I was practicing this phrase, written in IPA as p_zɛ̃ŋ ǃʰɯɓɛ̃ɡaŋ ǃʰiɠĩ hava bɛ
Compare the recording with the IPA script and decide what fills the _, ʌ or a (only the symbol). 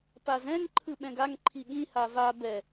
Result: a